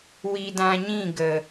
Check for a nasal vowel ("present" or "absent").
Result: present